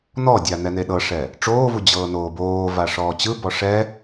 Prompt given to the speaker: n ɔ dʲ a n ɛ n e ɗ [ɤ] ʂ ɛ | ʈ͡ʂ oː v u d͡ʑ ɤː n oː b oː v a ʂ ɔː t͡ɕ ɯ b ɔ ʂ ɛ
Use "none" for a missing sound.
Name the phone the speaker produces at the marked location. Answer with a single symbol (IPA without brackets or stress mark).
ɤ